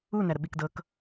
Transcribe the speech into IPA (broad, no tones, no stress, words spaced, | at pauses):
u næɾəɓikdɤk